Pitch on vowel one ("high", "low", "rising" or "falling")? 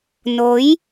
rising